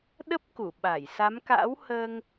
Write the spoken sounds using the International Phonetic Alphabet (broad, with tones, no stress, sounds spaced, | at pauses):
ɗ ə˦˥ p̚ k u˧˩ ɓ a˧˩ j s a˨˦ m k a̰ː˧˥ w h əː˧ ŋ